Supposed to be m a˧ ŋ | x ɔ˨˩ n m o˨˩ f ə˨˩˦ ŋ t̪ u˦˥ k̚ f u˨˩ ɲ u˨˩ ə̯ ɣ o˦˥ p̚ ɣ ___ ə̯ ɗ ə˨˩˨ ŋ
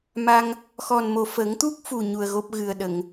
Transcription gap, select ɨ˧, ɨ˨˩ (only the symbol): ɨ˨˩